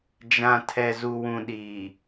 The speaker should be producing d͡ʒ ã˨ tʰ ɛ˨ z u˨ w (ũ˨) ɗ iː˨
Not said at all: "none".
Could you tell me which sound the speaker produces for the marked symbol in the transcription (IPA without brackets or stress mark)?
ũ˨